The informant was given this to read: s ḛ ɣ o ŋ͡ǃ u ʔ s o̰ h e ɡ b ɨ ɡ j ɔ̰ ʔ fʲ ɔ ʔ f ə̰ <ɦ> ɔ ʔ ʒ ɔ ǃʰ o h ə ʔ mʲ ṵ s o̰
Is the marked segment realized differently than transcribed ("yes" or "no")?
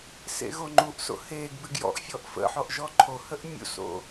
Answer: yes